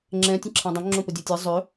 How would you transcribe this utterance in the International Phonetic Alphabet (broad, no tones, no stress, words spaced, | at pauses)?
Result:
ŋ͡ǁɛ̃ tʲə̃ǁʰãdˤœ̃ ŋ͡ǁõpədʲɛtʲɛ zˤø